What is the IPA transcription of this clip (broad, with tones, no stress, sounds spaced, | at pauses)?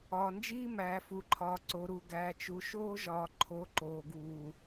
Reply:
ɒː˨ n d͡ʒ iː˦ m æː˨ f u˨ ǃʰ ɒː˨ ǀ o˨ ɾ u˨ ɡ æː˨ t͡ʃ u˨ ʃ oː˦ ʒ ɒː˨ ǃʰ o˨˦ ǃ oː˨ ɡ uː˨